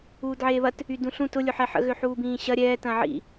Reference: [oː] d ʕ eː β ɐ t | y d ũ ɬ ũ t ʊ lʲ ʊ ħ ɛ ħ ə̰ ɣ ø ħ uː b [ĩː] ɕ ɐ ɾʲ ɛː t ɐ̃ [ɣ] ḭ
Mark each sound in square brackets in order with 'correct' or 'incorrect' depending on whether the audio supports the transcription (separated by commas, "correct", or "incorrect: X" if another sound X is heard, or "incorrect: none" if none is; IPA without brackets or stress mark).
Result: incorrect: uː, correct, incorrect: ʕ